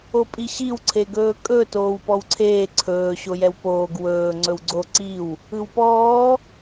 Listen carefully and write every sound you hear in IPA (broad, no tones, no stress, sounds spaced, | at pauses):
o pʼ i ɕ i w ǀʰ e ɡ ɵː kʼ ɵ t oː w p ɔ w ǀʰ eː ǀʰ ɵː ɕ o j ɛ w p oː ɡ w ɵː ŋ͡ǀ ɵ w ɡ͡ǀ o ǀ i w | ɯ w p ɔː